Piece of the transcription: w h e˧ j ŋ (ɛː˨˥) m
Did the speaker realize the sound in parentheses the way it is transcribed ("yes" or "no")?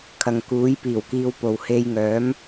no